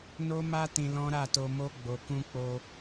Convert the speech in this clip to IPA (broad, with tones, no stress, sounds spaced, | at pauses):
n o˦ m a˦ t ĩ˧ l ɔ̃˦ ɾ a˦˨ t o˧ m o˦ ɡ͡b o˧ k ũ˦ k͡p o˧